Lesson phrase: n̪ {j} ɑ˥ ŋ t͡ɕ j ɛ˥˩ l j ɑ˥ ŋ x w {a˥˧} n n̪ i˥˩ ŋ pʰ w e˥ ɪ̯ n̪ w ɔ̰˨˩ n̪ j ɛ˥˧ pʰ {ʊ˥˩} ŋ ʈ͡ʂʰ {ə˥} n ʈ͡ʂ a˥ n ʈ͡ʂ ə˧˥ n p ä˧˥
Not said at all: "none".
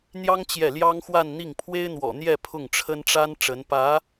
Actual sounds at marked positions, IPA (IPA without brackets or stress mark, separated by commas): j, a˥˧, ʊ˥˩, ə˥